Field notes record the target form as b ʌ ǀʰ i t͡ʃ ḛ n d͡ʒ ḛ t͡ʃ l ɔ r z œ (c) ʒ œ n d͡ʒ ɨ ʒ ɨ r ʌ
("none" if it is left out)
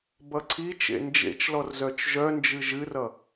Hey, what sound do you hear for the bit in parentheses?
t͡ʃ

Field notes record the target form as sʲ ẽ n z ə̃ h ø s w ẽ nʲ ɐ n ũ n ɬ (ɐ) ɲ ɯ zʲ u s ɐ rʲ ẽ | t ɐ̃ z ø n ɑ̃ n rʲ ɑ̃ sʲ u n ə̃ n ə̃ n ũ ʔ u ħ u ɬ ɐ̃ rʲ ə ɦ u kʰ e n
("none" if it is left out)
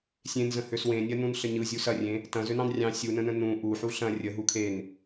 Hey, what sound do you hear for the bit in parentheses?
ə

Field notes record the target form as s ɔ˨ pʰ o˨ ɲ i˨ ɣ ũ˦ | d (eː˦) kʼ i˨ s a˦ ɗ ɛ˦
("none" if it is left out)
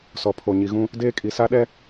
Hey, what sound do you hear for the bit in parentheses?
eː˦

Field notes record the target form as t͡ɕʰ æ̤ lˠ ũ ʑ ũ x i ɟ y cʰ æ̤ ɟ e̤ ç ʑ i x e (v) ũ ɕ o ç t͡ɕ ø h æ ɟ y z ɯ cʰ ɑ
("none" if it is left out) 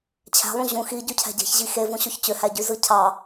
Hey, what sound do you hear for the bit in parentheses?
v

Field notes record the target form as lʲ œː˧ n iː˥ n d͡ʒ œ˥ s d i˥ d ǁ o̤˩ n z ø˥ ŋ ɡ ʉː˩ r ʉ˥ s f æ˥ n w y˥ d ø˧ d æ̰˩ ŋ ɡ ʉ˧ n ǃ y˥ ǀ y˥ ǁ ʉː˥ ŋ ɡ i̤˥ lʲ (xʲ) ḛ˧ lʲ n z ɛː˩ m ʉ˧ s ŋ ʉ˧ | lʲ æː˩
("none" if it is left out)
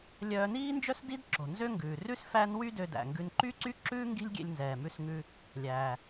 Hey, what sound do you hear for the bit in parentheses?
ɡʲ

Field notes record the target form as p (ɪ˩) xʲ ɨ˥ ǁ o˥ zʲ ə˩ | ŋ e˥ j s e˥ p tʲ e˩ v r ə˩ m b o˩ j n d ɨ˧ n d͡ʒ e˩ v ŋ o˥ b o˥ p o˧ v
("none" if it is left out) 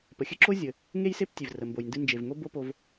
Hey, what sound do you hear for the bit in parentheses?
ə˩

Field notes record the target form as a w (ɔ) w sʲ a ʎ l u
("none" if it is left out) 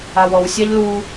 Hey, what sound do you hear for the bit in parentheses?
ɔ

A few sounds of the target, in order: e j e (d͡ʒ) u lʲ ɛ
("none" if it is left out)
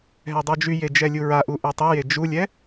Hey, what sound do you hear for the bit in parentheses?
d͡ʒ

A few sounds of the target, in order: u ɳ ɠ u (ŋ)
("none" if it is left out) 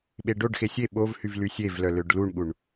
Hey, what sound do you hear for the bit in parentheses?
ɳ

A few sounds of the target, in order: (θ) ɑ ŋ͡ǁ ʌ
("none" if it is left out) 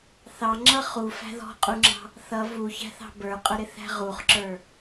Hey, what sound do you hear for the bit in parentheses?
θ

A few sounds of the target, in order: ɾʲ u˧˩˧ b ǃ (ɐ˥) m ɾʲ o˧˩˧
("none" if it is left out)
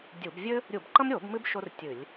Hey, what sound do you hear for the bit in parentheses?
ɐ˥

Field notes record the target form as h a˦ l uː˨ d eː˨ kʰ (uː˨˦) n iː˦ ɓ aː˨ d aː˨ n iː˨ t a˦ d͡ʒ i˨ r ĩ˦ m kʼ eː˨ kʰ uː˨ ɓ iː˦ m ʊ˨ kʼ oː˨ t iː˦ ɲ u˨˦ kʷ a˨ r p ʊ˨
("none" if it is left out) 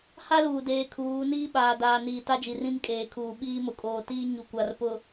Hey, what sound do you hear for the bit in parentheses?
uː˨˦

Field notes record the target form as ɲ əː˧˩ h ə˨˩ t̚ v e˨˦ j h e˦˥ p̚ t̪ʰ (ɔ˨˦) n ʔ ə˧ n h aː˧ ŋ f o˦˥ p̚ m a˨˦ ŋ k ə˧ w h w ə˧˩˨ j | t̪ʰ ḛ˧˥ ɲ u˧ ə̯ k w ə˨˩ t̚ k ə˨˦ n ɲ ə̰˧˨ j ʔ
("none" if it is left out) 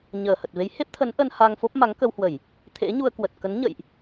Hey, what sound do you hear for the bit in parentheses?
ə˨˦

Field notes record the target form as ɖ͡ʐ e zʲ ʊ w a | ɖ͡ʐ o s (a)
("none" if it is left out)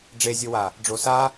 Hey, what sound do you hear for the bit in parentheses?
a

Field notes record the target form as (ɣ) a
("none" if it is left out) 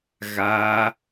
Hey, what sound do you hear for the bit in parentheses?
ɣ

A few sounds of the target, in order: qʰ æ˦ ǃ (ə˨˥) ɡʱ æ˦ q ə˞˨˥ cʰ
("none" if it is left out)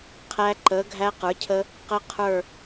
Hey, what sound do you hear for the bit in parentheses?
ə˨˥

